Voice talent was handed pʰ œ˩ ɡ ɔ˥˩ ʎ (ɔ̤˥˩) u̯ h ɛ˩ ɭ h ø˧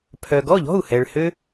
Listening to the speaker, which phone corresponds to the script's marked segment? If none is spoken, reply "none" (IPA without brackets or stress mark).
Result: ɔ̤˥˩